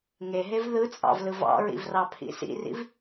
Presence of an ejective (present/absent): present